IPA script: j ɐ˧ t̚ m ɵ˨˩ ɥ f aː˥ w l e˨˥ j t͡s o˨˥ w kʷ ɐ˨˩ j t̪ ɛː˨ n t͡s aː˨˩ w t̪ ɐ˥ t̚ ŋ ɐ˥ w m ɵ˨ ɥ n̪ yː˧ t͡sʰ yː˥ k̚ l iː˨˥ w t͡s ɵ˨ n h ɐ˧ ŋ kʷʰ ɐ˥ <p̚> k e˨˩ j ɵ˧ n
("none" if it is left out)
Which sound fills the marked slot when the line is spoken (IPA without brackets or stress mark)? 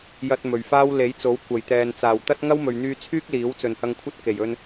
t̚